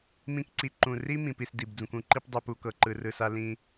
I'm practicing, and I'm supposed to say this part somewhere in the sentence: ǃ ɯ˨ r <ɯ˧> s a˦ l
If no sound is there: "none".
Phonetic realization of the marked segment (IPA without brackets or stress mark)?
ɯ˨